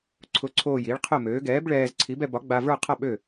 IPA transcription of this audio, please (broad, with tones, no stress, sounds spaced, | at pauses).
ǀʰ ʊ˨˥ ǀʰ oː˧˩ j i˨˥ ɭ qʰ ʊ˥˨ m øː˨˥ ɡ ɛː˨˥ b ɭ ɛː˧ z ǀʰ i˨˥ b ɛ˧ b ɒ˨˥ ɡ͡b a˧ v ə˞˥˨ qʰ a˥˨ ɓ ø˥˨